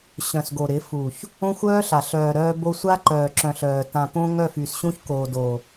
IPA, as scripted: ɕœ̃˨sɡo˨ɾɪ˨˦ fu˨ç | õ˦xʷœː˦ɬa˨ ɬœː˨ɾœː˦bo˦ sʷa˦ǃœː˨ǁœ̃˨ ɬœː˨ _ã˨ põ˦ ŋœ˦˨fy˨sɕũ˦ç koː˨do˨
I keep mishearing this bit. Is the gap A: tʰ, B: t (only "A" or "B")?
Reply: B